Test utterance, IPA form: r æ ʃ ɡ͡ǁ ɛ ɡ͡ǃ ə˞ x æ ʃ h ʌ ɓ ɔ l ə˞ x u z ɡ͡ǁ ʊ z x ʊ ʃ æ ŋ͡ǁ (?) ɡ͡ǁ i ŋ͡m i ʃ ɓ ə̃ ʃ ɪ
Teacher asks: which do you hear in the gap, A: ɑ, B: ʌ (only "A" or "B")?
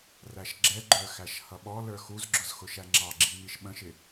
A